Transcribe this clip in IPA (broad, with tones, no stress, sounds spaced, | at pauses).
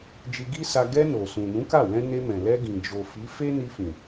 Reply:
d͡ʒ i˧ ɡ i˦ s a˧ ɡ ɛ˧ n o˨ s ũ˨ n ũ˨˦ k a˦˨ w ɛ̃˧ n e˧ m ɛ̃˨ l ɛ˧ ɡ ĩ˨ d͡ʒ o˨ f i˨˦ f e˦ n i˧ f ĩ˨